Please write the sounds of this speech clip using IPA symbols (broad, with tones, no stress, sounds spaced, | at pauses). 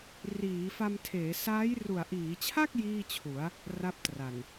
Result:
r iː˩˦ f a˧ m tʰ eː˩˦ s aː˦˥ j r u˨˩ a̯ ʔ iː˩˦ t͡ɕʰ a˥˩ k̚ j iː˥˩ t͡ɕʰ u˩˦ a̯ | r a˦˥ p̚ t r a˨˩ n